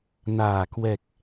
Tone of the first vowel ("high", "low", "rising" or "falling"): low